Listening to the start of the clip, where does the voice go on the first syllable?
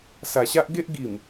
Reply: low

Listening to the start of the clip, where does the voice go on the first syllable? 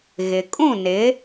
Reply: low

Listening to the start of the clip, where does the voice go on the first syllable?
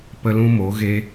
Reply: high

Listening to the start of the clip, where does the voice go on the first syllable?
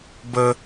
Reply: high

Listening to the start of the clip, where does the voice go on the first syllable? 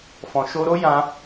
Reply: low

